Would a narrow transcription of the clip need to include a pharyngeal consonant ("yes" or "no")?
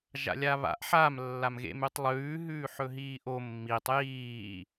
yes